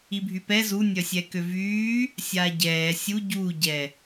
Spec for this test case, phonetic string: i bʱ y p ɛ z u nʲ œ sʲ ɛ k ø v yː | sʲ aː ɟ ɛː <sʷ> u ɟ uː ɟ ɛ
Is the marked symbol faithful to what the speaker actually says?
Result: no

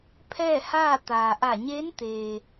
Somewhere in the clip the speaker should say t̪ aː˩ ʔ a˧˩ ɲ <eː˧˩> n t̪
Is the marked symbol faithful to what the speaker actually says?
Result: no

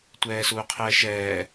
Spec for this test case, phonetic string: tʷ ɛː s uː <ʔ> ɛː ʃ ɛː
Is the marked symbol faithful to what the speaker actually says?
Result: no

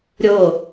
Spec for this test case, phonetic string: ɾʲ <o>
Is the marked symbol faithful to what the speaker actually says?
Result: yes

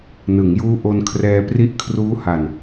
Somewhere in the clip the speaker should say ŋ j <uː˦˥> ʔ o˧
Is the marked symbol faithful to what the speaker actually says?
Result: yes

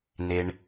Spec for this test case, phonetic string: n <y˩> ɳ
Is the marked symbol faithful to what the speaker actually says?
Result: no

